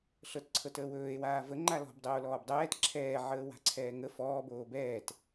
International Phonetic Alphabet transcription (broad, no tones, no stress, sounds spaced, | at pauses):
ɬ ɤ t ǀʰ ɤ t əː w ɵː e̯ w aː v ə ŋ͡ǃ a l ɔ̤ b dˤ əː o̯ l ɔː b dˤ ɛː t ǁʰ ɛː ʕ əː w a̤ ǀʰ ɛː ŋ ə f ɔː b oː b ɛː t